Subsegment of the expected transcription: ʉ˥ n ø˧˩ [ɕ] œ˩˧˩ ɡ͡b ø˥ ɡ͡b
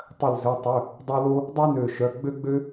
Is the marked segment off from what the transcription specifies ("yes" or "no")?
yes